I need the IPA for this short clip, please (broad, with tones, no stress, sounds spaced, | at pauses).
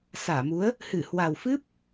s aː˧˩ m u˨˦ ə̯ | h ɨ˧˩ h w a˨˩ w f ɨ˦˥ p̚